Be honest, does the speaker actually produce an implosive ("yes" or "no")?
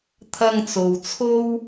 no